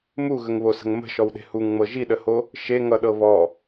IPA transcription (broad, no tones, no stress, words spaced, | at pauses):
muɣəŋβosə̤ŋ mə̤ʃɔwɗe̤ huŋŋ͡mɤ ʒiɗəho | ʃeŋʌɗɤ βɔ